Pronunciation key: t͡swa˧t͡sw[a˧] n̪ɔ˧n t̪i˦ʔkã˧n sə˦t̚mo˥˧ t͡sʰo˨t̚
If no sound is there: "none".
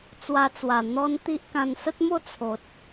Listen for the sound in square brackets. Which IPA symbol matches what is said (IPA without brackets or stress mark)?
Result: a˨˩